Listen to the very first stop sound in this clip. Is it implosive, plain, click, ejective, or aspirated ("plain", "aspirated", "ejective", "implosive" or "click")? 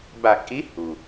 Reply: plain